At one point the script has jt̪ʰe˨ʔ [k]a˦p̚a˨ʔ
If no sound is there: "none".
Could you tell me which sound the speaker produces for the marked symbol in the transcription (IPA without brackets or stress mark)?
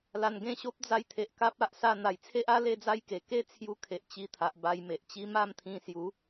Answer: k